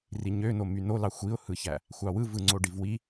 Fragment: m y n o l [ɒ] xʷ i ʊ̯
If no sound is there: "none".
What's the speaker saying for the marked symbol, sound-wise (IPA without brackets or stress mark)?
ɑ